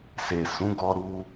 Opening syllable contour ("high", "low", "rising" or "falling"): low